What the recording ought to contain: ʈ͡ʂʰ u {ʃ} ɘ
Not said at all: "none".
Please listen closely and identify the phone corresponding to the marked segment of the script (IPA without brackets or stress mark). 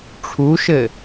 ʃ